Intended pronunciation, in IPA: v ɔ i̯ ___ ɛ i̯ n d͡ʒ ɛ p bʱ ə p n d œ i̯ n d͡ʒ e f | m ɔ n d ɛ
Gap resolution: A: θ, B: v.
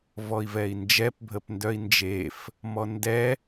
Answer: B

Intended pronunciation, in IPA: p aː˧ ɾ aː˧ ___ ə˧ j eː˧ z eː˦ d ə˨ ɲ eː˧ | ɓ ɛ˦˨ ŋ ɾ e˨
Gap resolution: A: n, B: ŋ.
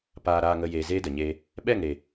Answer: B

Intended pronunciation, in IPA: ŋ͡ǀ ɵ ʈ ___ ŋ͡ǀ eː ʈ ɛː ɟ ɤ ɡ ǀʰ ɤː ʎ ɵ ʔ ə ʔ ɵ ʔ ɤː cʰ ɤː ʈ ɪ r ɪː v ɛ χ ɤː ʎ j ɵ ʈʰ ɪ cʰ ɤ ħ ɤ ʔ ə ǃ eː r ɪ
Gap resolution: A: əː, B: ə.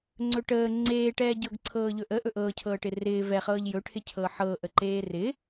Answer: A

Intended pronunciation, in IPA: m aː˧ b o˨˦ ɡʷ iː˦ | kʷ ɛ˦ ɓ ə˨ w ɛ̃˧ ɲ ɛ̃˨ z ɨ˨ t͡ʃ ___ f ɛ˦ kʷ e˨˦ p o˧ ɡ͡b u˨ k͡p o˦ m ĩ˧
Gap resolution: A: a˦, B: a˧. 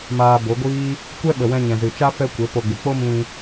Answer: A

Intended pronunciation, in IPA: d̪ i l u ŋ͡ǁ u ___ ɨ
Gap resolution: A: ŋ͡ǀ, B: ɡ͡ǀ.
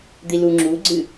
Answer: B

